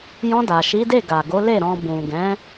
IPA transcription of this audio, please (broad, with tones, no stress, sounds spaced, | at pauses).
j ɔ̃˧ d a˨ ʃ i˨˦ d e˦˨ ɡ a˨ ɡ o˨˦ l e˦˨ ɾ ɔ̃˧ b ũ˨ ɡ ɛ̃˨˦